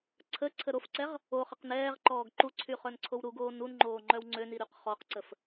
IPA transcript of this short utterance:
ǀʰə ǀʰəɾofǀɛʁ | o χəqnɛːʁǃɔːɡ ǃuǀʰy χœnǀʰowɾuɡoː nunŋ͡ǃoː ŋ͡ǃœwŋ͡ǀøni ɾyqχɔqǀəf

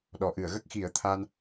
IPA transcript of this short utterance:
ɗɔ˨˩˨ʔɨ˨˩˨ə̯ ɣə˦˥k̚xi˨˩˦ə̯t̪ʰa˧n

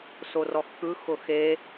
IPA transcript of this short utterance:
sorɔxkɯ xʊxe

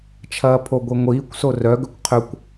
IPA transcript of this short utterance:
t͡ʃʰɐːpʰoɡʷiŋʷiːkʷ sorœɡʏkʷ qʰøkʷ

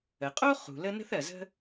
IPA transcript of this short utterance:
ə˩qʼo˥ χṳ˩lə˥ nə̤˥θɜ˩zə̤˥

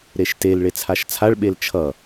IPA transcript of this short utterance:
ɾeʃtel ɭet͡sʰaʃt͡sʰaɭɓel t͡ʃʰʌ

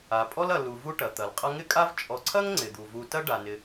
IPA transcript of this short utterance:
a˩pʼɔ˥lɐ˨ lu˨vu˦ʈɐ˩ t̪ɐ˩lqʼɐ˦ŋɪ˥kʼa˥v t͡ʃʼɔ˨ǀʰɐ˥ŋ ŋ͡ǀɪ˩d̪u˩vu˨tɐ˥ ɖa˩nɪ˨

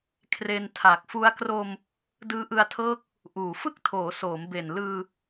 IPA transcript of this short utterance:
kʰre˧ntʰa˨˩k̚fu˦˥a̯ kro˧m | dɯː˦˥ʔɯ˧a̯tʰɤː˦˥k̚ | ʔuː˨˩ fɯ˥˩k̚tʰoː˩˦ soː˩˦mbe˨˩n lɯː˧

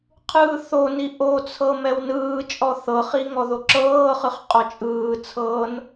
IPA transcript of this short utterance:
qʰɯːθoni ʔot͡sʰɤ mɛwnɯːt͡ʃʼɔ θɤχi ŋɔðoǁɤːχɯχ qʼɔt͡ʃʼɯːt͡sʰɤːn

